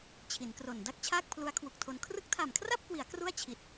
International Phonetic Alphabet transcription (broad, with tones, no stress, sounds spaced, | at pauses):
t͡ɕʰ i˩˦ n k r o˨˩ n d a˥˩ k̚ t͡ɕʰ aː˥˩ k̚ pʰ l u˦˥ a̯ kʰ w u˨˩ k̚ tʰ o˧ n kʰ r ɯ˦˥ k̚ tʰ a˨˩ m kʰ r a˥˩ p̚ k w i˩˦ a̯ k r u˥˩ a̯ t͡ɕʰ i˨˩ t̚